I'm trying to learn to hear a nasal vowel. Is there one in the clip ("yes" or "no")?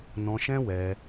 yes